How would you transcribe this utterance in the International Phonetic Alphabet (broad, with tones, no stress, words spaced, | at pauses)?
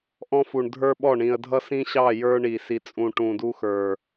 ʔɔ̃˦fu˨ɳ dʱə˞˦ɓɔ˦˨ɳĩ˨ə̯ dʱʌ˦sĩ˦ɕɑ˦˨ jə˞˦ɳi˨si˨t͡sʼũ˨ ʈũ˨du˦xə˞˨